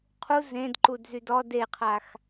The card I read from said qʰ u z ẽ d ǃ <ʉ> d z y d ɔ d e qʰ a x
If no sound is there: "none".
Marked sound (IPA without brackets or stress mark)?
u